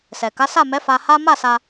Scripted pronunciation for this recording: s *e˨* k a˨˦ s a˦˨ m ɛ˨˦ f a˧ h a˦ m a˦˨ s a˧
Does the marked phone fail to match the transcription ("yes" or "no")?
yes